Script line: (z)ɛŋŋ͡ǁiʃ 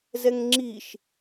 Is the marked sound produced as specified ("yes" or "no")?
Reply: yes